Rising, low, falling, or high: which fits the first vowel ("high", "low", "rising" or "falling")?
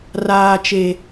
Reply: high